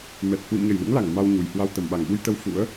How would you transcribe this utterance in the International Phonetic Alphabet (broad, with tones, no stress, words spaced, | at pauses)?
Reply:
mɛ˨˩t̚ hwḭ˧˨mɲə˧˩jlṵ˧˥ŋla˧˩ŋ ma˧wɲu˨˩jhwa˧w t̪ə˧˩mɓa˧˩ŋɓu˧jt̪ə˧w fṵ˧˥ə̯